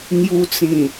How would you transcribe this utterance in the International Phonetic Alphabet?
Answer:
ŋju˧t͡sĩ˨˩

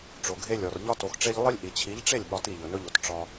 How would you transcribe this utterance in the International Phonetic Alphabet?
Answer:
ʈ͡ʂo˨ɡʱe˧lʲɔ˨r ʎɒ˧to˨xʈ͡ʂe˧ʎ lˠi˧lʲʔi˨t͡ɕʰi˨˦ʎʈ͡ʂe˦˨lʲ ɓɒ˧ti˦˨ʎɵ˨ nɵ˦ʎo˧t ʈ͡ʂɒ˧

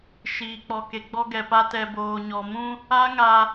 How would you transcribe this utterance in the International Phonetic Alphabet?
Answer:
ʃiː˨k͡pɔ˨ke˨ ɡ͡bɔ˦ɡɛ˨pa˦ tɛ˨boː˨ ɲɔ˨mũ˦ | a˦ ŋa˦

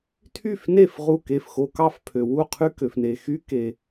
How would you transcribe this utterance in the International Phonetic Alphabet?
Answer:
tʰy˥˩fne˥˩f ʁu˥˩ke˥˩fxo˦ kɑ˥˩fpʰø˩ wu˥˩qʰy˦ kø˩fne˩ xy˦ke˩

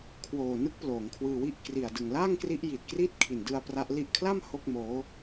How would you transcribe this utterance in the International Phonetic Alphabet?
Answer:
kʰwoː˨˩nɯ˦˥k̚ ploː˩˦ŋkʰwɯː˧wi˥˩ʔ kri˨˩a̯dɯ˨˩ŋ la˥˩ŋkri˦˥ʔ ji˨˩t̚kri˥˩t̚ kʰi˨˩ndɯ˧a̯ pra˦˥ʔ li˥˩ʔ kʰla˥˩m ho˥˩k̚moː˦˥

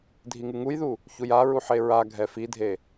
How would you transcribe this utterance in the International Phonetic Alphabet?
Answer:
dʱiŋɨŋujðu | çujaɹu ħeɹaɡʱɛ fidʱe

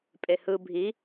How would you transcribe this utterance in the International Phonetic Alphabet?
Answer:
pʼehɯ bʱi

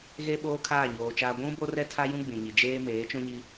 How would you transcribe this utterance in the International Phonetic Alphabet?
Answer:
ɣe˦ ɓoː˦kʰaː˦˨ɲoː˨t͡ʃaː˦ ɡʷũ˦ bo˦rɛ˦tʰa˦jũ˦ ɡ͡bĩ˨ɲi˨ d͡ʒeː˦ meː˨˦t͡ʃũ˦ɲi˦

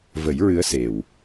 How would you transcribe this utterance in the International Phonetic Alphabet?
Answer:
və˨˩˦j ɹɨ˧˥ə̯se˨˩w

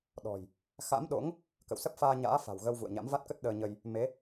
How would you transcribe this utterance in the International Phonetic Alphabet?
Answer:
ɗɔ̤˨˩j | xa̰˧˥mɗo̰˧˥ŋ | kə̰˧˨wsə˦˥p̚faː˧ ɲa̰ː˧˥fa̤˨˩wɣə˧w vṵ˧˨ə̯ɲa̰˧˥mva˦˥t̚kə˦˥t̚ ɗəː˧ɲə˧j | me˨˦

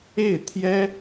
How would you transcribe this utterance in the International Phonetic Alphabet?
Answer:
e˥˩ɪ̯t̪ʰjɛ˥

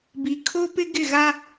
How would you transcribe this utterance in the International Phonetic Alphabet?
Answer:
bi˨ kʰo˦pɪ˦ ɡɪ˦˨ɣa˦

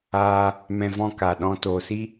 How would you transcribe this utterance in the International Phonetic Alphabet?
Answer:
aː˧ | mɛ̃˧vɔ̃˦˨ka˨ɗɔ̃˧ toː˨si˦

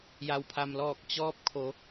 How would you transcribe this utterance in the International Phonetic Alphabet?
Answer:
ja˩wpʰa˩mlɔː˧˩k̚ t͡ɕɔː˧p̚kʰo˩˧

